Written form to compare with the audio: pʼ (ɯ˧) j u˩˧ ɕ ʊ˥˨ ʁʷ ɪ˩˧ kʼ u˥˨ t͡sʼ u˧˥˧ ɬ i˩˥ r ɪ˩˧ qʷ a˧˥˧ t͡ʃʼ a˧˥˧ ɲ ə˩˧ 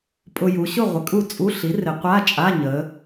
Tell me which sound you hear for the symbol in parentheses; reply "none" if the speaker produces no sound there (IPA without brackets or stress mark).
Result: ʊ˧